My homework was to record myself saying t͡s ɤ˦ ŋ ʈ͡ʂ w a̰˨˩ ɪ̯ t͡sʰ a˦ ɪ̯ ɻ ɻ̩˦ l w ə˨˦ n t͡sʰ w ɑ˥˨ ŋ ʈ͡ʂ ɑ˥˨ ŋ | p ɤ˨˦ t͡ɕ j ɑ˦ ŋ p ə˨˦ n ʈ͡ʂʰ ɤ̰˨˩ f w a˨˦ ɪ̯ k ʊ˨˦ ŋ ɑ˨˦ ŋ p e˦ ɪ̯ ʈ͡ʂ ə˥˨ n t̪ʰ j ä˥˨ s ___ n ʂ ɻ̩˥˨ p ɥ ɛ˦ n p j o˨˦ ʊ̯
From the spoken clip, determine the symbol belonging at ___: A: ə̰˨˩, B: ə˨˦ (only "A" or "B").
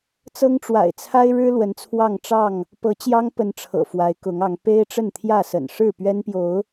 A